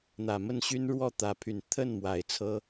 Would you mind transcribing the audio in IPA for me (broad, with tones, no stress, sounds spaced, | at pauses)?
n̪ ä˨˩ m ə˥˩ n ɕ y˥ n ɻ w ɔ˥˩ t̪ ä˧˥ pʰ y˨˩ n t̪ʰ ə˥˩ n m w a˨˩ ɪ̯ t͡sʰ ɤ˥